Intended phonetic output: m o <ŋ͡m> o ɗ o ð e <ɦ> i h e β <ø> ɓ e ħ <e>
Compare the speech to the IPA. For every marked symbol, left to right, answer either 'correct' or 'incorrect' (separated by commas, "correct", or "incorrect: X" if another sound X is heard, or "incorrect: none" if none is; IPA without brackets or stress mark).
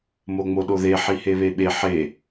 correct, incorrect: ħ, incorrect: e, correct